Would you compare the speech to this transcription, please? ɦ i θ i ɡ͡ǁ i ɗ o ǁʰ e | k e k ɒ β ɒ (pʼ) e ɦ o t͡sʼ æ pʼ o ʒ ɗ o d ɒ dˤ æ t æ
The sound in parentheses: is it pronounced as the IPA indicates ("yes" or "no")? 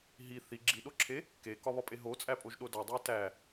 yes